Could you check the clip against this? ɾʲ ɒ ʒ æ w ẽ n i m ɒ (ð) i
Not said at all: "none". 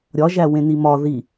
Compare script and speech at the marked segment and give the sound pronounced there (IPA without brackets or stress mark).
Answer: ð